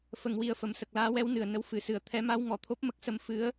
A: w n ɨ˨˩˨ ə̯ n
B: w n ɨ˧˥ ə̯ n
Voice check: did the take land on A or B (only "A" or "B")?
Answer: A